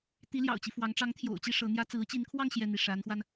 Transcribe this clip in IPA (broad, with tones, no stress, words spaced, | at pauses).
t̪i˧˥ljɑ̰˨˩ʊ̯t͡ɕi˦fwɑ˧˥ŋ ʈ͡ʂɑ˧˥ŋt̪ʰjo̰˨˩ʊ̯t͡ɕi˥˩ ʂɤ˧˥n̪jä˥ t͡sɹ̩˧˥t͡ɕi˧˥nkʰwɑ˥˧ŋ ɕjɛ˥˧n̪i˥˩ ʂa˧˥nxwa˧n